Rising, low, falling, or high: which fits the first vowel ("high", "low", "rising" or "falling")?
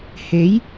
rising